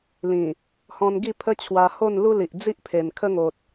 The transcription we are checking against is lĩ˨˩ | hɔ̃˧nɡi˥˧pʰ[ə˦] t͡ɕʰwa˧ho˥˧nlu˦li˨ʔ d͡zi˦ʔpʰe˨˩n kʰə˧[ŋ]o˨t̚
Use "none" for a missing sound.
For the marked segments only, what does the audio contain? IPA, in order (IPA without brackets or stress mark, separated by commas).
ə˦, ŋ